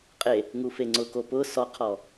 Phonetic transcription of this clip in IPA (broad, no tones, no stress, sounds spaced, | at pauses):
qʼ e | ŋ u f e ŋ͡ǀ ʊ k o p ʊ s ɔ qʰ ɔ